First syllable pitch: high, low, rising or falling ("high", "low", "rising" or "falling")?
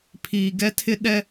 low